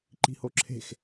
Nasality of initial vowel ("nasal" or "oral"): oral